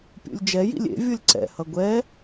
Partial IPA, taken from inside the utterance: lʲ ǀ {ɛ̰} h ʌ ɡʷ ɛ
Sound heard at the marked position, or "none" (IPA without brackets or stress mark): ɛ̰